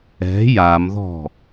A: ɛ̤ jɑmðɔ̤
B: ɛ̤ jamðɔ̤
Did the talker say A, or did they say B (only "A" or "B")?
B